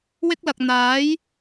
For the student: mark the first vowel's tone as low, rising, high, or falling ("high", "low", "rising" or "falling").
high